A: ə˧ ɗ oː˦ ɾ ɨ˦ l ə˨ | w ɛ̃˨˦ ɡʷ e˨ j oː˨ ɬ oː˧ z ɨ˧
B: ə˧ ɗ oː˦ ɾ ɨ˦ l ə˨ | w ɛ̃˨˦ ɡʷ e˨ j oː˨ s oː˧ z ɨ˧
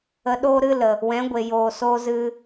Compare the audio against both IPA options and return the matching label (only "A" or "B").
B